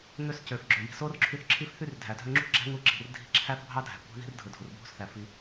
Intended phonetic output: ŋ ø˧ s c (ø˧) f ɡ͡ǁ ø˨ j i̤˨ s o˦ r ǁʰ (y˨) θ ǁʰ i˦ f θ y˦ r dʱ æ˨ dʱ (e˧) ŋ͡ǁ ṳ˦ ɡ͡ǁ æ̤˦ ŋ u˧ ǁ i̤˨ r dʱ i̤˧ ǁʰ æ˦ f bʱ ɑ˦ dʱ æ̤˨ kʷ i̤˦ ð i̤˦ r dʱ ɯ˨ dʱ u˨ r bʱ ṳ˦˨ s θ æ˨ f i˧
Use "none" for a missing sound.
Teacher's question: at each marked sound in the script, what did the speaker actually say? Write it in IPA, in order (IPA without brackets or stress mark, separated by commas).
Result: ø˨, y˧, ø˧